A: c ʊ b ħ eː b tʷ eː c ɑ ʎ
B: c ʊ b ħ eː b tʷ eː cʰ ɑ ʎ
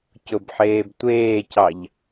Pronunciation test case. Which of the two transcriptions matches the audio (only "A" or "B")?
A